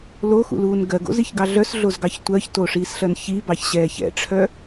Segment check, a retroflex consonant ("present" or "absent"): present